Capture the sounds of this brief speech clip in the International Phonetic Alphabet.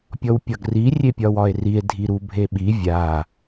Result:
pʲ ɔ w pʲ ɒ ɡ r i rʲ e pʲ ɒ w ɒ e̯ r i e̯ dʱ i ɾ u bʱ e ɓ i vʲ a

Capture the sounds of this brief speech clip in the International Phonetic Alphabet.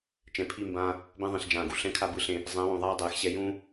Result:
t͡ʃ ɛ̃˨ pʰ i˦˨ m b ãː˦ | b ɛ̃˦ ðˤ ĩ˨ ɬ d͡ʒ ãː˨ ɡ u˨ ɬ ɛ̃˦ kʰ a˦ b ɯ˦ ɬ ẽ˦˨ | zˤ ɛ̃˨˦ w ũ˨ ðˤ aː˦ dˤ ɛː˨ x ɕ ɛ˦ j ũː˦

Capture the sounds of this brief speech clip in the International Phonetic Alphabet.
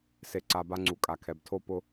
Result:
s e˨ ǀ a˨ b a˦ ŋ͡ǀ u˩ kʼ a˩ kʰ ɛ˩ b tʰ o˥ p ʊ˥

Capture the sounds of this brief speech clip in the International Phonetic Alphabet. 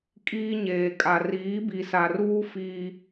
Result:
kʼ iː˦ ɲ eː˨ kʼ a˨ r iː˨˦ b i˨ s a˨ r uː˦ f i˦

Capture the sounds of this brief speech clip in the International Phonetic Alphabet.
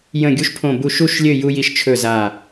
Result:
j ə̃˦˨ ɡʲ u˦ ʃ pʰ õ˦˨ b u˦˨ ʃ u˦˨ ʃ lʲ ø˦˨ j u˦ j i˦ ʃ t͡ʃʰ ɵ˦˨ z a˦˨

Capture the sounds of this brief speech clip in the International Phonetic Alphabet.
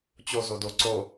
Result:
t͡ɕ o z o d o ǀ o

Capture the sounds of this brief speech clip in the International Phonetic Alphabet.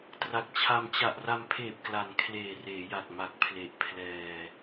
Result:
t r a˨˩ k̚ t͡ɕʰ a˧ m t͡ɕ a˨˩ ʔ r a˧ m pʰ eː˨˩ p̚ k l a˨˩ n kʰ l eː˨˩ r eː˩˦ j a˨˩ k̚ m a˨˩ k̚ pʰ l e˨˩ ʔ pʰ l ɛː˧

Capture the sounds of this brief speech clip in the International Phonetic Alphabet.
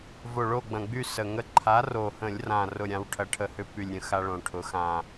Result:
v o˨˩ ɭ o˦˨ ɡ͡b ɐ̃˨˩ ɡ͡b y˦˨ s ə˨˩ ŋ ə˦˨ ǃʰ a˨˥ r o˨˩ h ə̃˧˩˧ lʲ r ã˨˩ r ʊ˦˨ ɾʲ ã˨˥ w ʈʰ ɐ˨˥ ʈʰ ə˨˩ h ʏ˦ p y˨˩ lʲ ɾʲ ə̃˨˥ x a˦ ɭ õ˨˩ ʈʰ ʊ˨˥ x ã˨˩

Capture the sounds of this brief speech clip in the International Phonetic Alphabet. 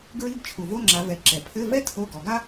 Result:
ɡ ɹ i˧˥˧ ɡ t͡ʃʰ u˩ v o˧˥˧ ŋ͡ǁ a˩˧ v ɛ˩˧ ǁ ɛ˩ pʰ ɘ˧˥˧ v ɛ˥ tʰ o˧˥˧ ɡ ɔ˩˧ ɡ a˥

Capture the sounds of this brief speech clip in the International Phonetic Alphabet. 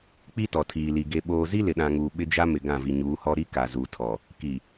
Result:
k͡p i˦ t ɔ˨ tʰ iː˨ l i˨ ɡ e˨ ɓ oː˨ z i˦ l ɪ˨ ɗ ã˨ ŋ uː˨ ɓ ɪ˦ d͡ʒ a˦ m ɪ˨ ɡ ã˦˨ v i˨ ɲ uː˨˦ h ɔ˦ ɾ i˦ k a˨ z u˨ tʰ ɔ˨ | k i˨

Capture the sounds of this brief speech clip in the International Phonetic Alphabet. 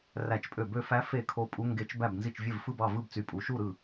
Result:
r æ˥˧ t͡ʃ pʼ ø˥˧ b ø˥˧ f æ˦˥ f e˥˧ kʰ o˦˥ pʼ u˦˥ ŋ ɡ e˦˥ t͡ʃ b æ˥˧ b n z i˥˧ t͡ʃ vʲ e˥˧ v f ɯ˥˧ b ɑ˥˧ v ɯ˥˧ b t͡s y˥˧ pʼ u˦˥ ʃ u˥˧ ɾ ɯ˥˧

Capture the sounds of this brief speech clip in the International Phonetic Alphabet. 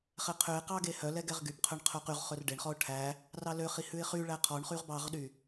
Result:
χ ɛ qʰ ø ɪ̯ q ɑ ɡ e h œ l ɛ ɡ ɛ ʁ ɡ y b qʰ œ ɳ qʰ œ q y ʁ χ ɵ r ɖ e ɳ χ ɔ ʊ̯ ʈʰ æ | r ɑ l ø χ i h ʉ ɪ̯ χ y ɭ æ qʰ ɔ ɳ χ y ʁ b ɑ ʁ ɗ y

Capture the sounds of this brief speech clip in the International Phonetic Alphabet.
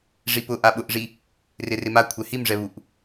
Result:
ʐ i p ʊ ʔ a ɓ ʊ ʔ ʐ i | r ɪ r ɪ m a kʷʰ ɛ h i m ʐ ɛ β u ʔ

